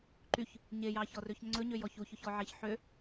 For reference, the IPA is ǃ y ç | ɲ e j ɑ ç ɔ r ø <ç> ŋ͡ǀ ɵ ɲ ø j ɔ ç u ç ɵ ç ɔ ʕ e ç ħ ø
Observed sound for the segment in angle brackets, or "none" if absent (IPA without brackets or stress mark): ç